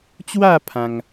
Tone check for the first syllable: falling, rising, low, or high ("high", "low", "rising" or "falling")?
falling